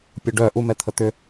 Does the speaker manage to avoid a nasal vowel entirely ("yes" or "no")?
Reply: yes